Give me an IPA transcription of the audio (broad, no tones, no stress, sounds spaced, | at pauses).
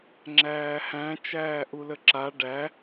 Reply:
ŋ͡ǁ æː h æ̃ t͡ʃ æː ʔ u l ə ǁ a ɖ æ